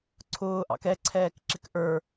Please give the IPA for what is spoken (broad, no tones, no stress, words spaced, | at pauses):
ǀʰʊːʔɑ̰k ɛǀʰɛːkǁɪk ʔə˞